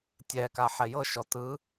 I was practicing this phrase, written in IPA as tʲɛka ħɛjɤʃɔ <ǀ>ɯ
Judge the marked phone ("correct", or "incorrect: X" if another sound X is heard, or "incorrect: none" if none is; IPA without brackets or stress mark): incorrect: t